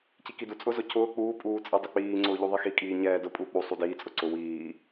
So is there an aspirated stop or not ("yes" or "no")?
yes